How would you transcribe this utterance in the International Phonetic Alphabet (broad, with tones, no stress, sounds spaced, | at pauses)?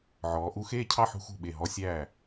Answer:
ʕ ɔː˩˧ ʔ u˧ x eː˥˧ cʰ ɑ˥˧ ħ ṳ˧ x ṳ˧˩ ɓ e˧˩ ɦ ɔ˧ sʲ æː˧˩